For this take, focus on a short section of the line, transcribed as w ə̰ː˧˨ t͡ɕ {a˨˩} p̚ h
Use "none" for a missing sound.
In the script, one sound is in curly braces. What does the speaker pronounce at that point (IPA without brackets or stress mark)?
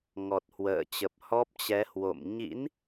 ə˨˩